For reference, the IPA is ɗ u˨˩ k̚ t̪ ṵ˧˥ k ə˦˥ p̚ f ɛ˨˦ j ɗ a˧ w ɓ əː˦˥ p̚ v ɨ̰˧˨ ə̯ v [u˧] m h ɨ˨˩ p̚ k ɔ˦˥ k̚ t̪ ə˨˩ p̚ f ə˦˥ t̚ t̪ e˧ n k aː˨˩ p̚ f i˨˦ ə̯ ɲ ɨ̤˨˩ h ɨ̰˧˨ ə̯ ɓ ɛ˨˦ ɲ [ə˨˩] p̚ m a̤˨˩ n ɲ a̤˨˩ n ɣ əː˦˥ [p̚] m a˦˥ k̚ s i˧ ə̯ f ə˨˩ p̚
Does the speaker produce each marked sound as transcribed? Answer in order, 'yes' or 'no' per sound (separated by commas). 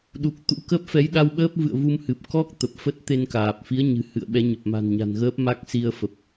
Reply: yes, yes, yes